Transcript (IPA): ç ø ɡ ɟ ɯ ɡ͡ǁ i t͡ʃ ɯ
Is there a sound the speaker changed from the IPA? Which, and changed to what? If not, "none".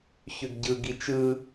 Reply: ɡ͡ǁ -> ɡ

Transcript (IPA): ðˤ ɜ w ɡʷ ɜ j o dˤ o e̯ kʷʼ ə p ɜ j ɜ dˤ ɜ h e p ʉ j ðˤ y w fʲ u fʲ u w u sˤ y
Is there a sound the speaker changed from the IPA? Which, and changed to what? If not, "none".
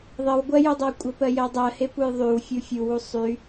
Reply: ʉ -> u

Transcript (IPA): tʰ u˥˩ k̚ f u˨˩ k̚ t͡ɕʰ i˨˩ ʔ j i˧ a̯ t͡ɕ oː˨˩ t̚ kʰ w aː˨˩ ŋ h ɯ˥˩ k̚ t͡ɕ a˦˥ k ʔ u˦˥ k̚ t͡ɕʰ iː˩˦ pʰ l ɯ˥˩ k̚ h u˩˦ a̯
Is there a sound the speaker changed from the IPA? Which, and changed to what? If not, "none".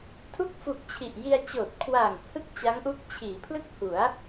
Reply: k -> ŋ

